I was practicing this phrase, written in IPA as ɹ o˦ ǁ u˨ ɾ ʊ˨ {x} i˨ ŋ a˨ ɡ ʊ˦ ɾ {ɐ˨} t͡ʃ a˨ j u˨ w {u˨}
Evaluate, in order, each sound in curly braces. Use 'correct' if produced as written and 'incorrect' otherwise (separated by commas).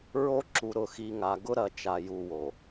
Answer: correct, correct, incorrect